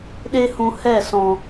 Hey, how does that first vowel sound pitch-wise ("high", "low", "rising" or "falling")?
high